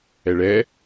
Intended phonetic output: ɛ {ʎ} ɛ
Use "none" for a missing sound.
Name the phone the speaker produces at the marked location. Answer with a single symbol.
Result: ɭ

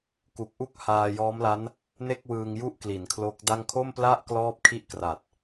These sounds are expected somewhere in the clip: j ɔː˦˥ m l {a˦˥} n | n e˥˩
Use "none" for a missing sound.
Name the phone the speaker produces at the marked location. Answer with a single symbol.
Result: a˦˥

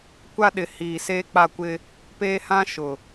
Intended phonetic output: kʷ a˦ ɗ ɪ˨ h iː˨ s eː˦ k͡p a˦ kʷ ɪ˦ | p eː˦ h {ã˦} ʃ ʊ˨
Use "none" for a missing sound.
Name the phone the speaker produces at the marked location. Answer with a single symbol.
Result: ã˦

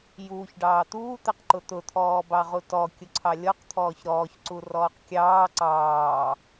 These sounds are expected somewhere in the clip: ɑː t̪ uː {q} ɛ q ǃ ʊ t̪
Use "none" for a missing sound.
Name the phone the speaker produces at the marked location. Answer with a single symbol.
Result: t̪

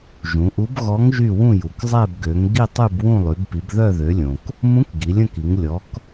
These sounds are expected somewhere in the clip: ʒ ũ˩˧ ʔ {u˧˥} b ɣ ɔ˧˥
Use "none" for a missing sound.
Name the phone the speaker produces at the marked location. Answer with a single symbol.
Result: u˧˥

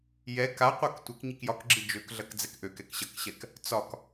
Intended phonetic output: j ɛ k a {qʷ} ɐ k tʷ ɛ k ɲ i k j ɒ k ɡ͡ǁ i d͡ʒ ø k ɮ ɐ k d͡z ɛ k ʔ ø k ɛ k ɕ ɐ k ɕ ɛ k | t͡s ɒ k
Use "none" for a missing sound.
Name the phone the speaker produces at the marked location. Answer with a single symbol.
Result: qʷ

